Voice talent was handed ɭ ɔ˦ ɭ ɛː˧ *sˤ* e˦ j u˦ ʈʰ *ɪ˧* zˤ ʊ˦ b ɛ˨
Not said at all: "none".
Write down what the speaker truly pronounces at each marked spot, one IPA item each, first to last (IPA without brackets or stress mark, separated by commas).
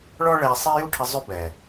sˤ, ɪ˧